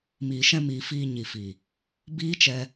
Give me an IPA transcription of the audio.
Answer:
m iː˨ ʃ ɛ̃˧ m iː˨ f iː˧ ɲ i˨ f i˨ | b iː˦ t͡ʃ ɛ˧

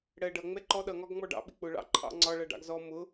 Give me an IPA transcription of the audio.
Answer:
ɽ ɜ ɖ ʌ ŋ͡m ɛ ǃ ɔ ɗ ʌ ŋ ɒ ɡ ŋ͡m ɔ ɖ ɑ̰ ɓ ɪ k͡p ʊ ɭ ɑ̰ ǃʰ ɑ̰ ŋ͡ǀ ɒ ɭ ʌ ɖ ɑ̰ ɡ z ɔ m ʊ

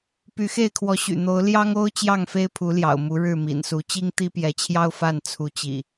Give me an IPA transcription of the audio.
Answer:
p y˨˦ x e˥˨ ɪ̯ kʰ w ɔ˨˦ ɕ y̰˨˩ n̪ o˨˦ ʊ̯ l j ɑ˦ ŋ o˦ ʊ̯ t͡ɕ j ɑ˥˨ ŋ f e˦ ɪ̯ pʰ u˨˦ l j ɑ̰˨˩ ʊ̯ m u˨˦ ɻ ɻ̩˥˨ m ḭ˨˩ n s u˨˦ t͡ɕ i˦ ŋ t̪ i˦ p j ɛ˨˦ t͡ɕʰ j ɑ˦ ʊ̯ f a˥˨ n t͡sʰ u˨˦ t͡ɕ ḭ˨˩

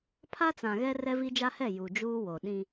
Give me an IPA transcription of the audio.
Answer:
pʰ a˦ t͡s ã˨ ɣ ɛ˦ r ɛ˦ v i˦ d͡ʒ a˦ h ɛ˦˨ j u˨ d͡ʒ uː˦ w o˨ ɗ ĩ˦

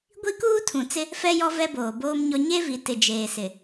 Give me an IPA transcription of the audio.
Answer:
ɡʷ i˦ k uː˦ tʰ ũ˨ t͡s ɪ˦ | f ɛ˦ j ɔ˦ v ɛ˦ b oː˨ b oː˦ m ɲ ɔ˦ ɲ e˦ v i˨ t ɪ˨ d͡ʒ eː˨ s ɪ˨

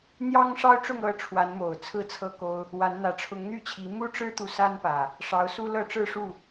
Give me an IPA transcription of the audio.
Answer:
n̪ j ɑ˦ ŋ ʂ ɑ˦ ʊ̯ ʈ͡ʂ ʊ˥˨ ŋ ɤ˥˨ ʈ͡ʂʰ w a˨˦ n m o˨˩ ʊ̯ t͡sʰ ɹ̩˥˨ t͡sʰ ɤ˥˨ k o˦ ʊ̯ | w a˨˦ n n̪ ä˨˦ ʈ͡ʂʰ ʊ˨˦ ŋ n̪ y˥˨ t͡ɕʰ i˨˦ m u˦ ʈ͡ʂ ɻ̩˦ t̪ u˨ s a˦ n p ä˨˩ | ʂ ɑ˨˦ ʊ̯ s u˦ l ɤ˥˨ ʈ͡ʂ ɻ̩˥˨ ʂ u˥˨

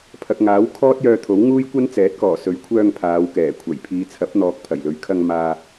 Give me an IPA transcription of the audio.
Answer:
pʰ ɐ˨ k̚ ŋ aː˨˥ w kʰ ɔː˥ t̚ j œː˧ t̪ʰ o˨˥ w ŋ uː˥ j kʷ ɐ˥ n t͡s ɛː˨˥ t̚ k ɔː˨˩ s ɵ˨˥ ɥ kʷʰ œː˧ ŋ pʰ aː˨˧ w k ɛː˨˩ kʷʰ ɐ˨˩ j pʰ iː˨ t͡sʰ ɐ˨˥ p̚ n̪ ɔː˨ k̚ pʰ ɐ˨˩ j l ɵ˨˥ ɥ kʰ ɐ˧ ŋ m aː˧

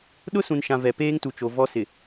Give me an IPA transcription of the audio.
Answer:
ɗ ʊ˦ s ũ˨ n ʃ ã˨ v ɛ˨ p eː˦ ŋ t u˨ t͡ʃ o˨ v ɔ˦ s ɪ˨

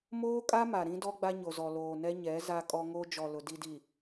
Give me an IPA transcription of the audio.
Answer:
m oː˦ kʼ a˦ m a˨ ɾ ĩ˦ d ɔ˦ ɡ͡b a˦ ɲ o˨ z ɔ˨ l oː˨ n ɛ˦ ɲ ɛ˨˦ z a˦ kʼ ɔ˦ ŋ o˦ d͡ʒ ɔ˨ l ʊ˨ d i˨ d i˨

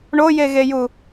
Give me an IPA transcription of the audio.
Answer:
ɳ o j e ɣ e j u

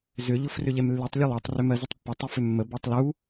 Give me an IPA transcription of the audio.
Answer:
z ʏ ʎ ʊ f r ʏ ʎ ɛ m lː ʉ tˤ lʲ ə lˠ ɛ tˤ r ʏ m ɜ z ʏ tˤ pː ə tˤ ʏ f ʏ mː ə b ɛ tˤ l u

